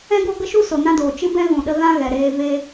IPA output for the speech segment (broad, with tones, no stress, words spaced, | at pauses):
ɛ̃˦ɡo˦ɡə˦ʃu˦ so˨nã˦doː˨ t͡ʃɨ˦bɛ̃˦ ɣũ˨ɗə˧ ɣã˦ɣɛ˨ɾeː˧ ve˦